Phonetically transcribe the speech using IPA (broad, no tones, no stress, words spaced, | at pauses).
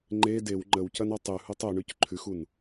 ŋ͡ǃe dew ŋ͡ǃəwcɐnɒ tˤʉhutˤ oɳʉc ǃʰʉxun